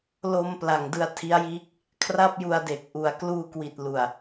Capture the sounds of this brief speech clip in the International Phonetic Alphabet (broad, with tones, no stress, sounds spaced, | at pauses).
l o˧ m p l a˨˩ ŋ d ɯ˧ a̯ tʰ i˦˥ a̯ j iː˥˩ k̚ | kʰ r a˥˩ p̚ j u˧ a̯ d e˨˩ k̚ ʔ u˨˩ a̯ k l uː˧ k w i˨˩ t̚ l u˨˩ a̯